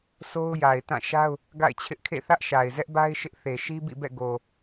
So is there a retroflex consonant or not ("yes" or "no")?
no